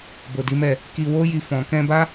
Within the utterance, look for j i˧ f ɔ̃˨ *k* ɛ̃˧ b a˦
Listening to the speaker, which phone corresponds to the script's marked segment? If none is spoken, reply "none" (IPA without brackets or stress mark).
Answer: k